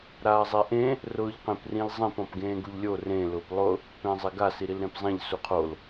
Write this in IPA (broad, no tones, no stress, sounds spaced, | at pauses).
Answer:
ɾ aː zˤ e ʔ ẽ | r ʊː ʎ q ẽ p r ĩ l zˤ ĩ p ɔ̃ p ɡ ẽː ɡ u ʎ lʲ o r ẽ l ʊː p lˠ ʊ | p ẽː zˤ e ɡ a s i ɾ i l ɾ ẽ p zˤ ẽ ʎ s u qʰ o l